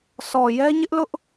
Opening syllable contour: low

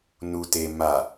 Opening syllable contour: low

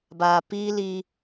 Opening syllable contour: low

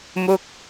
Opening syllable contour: falling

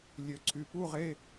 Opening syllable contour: low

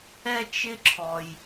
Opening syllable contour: high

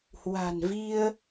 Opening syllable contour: low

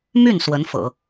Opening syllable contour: falling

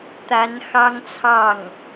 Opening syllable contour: rising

